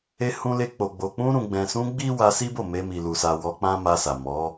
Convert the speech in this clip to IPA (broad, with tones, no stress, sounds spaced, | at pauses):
e˧ h ũ˧ l e˧ k͡p o˨ ɡ͡b o˨ k͡p ũ˧ ɾ ũ˨ ɡ͡b ɛ̃˨ s ũ˧ ɡ͡b i˦ w a˧ s i˦ b o˦˨ m e˧ m i˨ l u˨ s a˨ w ɔ˧ k͡p ã˦ m a˧ s a˨ m ɔ˨˦